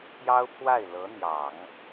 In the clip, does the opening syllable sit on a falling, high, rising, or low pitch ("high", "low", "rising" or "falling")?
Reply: high